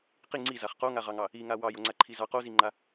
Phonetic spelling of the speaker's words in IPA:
q i ŋ͡ǀ i z a χ q o ŋ a ʁ ɑ ŋ ɑ | i ŋ a w ɑ j o ŋ͡ǀ a ǃʰ i z ɑ q o z i ŋ͡ǃ a

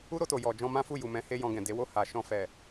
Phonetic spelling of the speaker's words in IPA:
u˦ ɾ o˧ t o˨ j ɔ˨ d͡ʒ ɔ̃˧ m ã˦ f u˦˨ j u˨ m ɛ̃˨˦ h e˧ j ɔ̃˧ ɡ ɛ̃˨ d e˨˦ w o˦˨ h a˨ ʃ ɔ̃˧ f ɛ˨

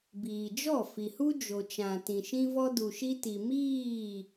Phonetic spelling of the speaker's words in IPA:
b iː˨ d͡ʒ ɔ˦˨ f i˨ h u˦ d͡ʒ o˨ t͡ʃ ã˨ t ĩ˨ ʃ ĩ˧ v ɔ˧ d u˨ ʃ i˧ t i˨ m iː˦˨

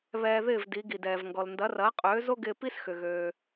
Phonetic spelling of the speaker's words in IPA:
β ɛː˧ ð ɪː˥˩ v d i˩˥ ɡ i˩ d ɛː˩ v ŋ ɡ ɔ˩ l n d ɐ˩˥ r ɐː˩˥ qʼ øː˩˥ z o˥ ɡ ɪː˧ p i˥ s x ʏ˩ ɣ øː˩

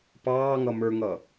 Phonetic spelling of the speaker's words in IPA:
p ɑː ŋ ʌ m ə˞ ŋ ʌ

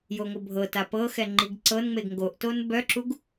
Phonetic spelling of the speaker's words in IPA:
j o ŋʷ ɤ bʱ ɤ t a p ɤ x ɛ ŋ͡ǃ i ɡ ǀ ɤ n ŋ͡m e ɡ ŋ ɡ o ʔ t o n b œ ǁ u ɡ

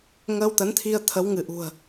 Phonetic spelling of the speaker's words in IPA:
ŋ əː˧ w t̪ ə˨˦ n t̪ʰ i˧ ə̯ t̪ʰ ə˨˦ w ŋ ɨ˧˩ ʔ ṳ˨˩ ə̯

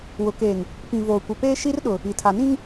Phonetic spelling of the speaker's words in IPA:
w ʊ˨ k eː˨ ŋ | p ĩ˨ v oː˨ kʷ ɪ˨ p eː˦ ʃ i˦ r ɗ ʊ˨ | i˨ tʰ a˨ n ĩ˦ ŋ

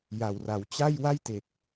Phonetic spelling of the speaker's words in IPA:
j a˨˩ w r a˩˦ w t͡ɕ a˥˩ j w a˥˩ j t e˨˩ k̚

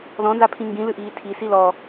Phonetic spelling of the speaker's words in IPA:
ð ɔ̃ n z a pʰ ĩ ŋ ɡ ĩ l ɨ ʔ iː tʰ i s i l ɔ

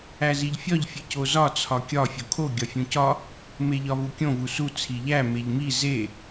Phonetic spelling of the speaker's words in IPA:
æ z i ʎ fʲ ɒ ʎ fʲ e c o z ɒ t͡sʰ ɒ kʲ ɒ fʲ o kʰ o ɡʲ ɒ fʲ ũ c ɒ | m e ʎ ɒ v u kʲ õ v u s u t͡sʰ i ʎ æ m e ʎ m i z e

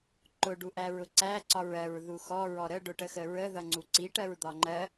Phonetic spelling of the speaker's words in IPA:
ǃ ʊ ɖ u ʔ æ ɹ ʊ ǀ æ ǀ ɒ ɹ ɜ ɹ ð u x ɔ ɹ ɔ ɾ ə ɖ ʊ ʈ ə x ə ɹ ə ð ʌ ŋ͡ǀ u ǀ i ʈ ɜ ɹ d̪ ɒ ŋ͡ǃ ɜ

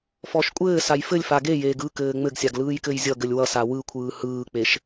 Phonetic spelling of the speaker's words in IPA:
f ɔ ʃ kʷʼ ɘː s a j f ɘ lʲ f a ɡ e j eː ɡ ɯ k ɘː ŋ͡m ɘ ɡ sʲ a ɡ l ɯː j k ɘ j zʲ ʌ ɡ ɘ lʲ w ʌ s a w ɯ kʷʰ ɯː h ɯː k͡p e ʃ

